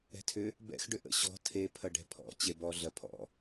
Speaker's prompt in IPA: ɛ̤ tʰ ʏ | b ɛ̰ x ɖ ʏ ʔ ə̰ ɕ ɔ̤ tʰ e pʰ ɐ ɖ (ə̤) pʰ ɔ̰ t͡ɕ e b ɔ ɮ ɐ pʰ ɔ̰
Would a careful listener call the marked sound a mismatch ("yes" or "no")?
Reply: yes